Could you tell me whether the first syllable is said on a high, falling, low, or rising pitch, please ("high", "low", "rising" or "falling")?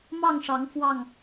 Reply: falling